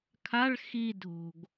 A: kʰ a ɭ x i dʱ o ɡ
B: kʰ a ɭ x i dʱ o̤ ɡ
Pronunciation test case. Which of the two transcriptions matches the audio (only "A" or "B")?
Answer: B